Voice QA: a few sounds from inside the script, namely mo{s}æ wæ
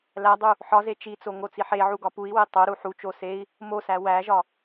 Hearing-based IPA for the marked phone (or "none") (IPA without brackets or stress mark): s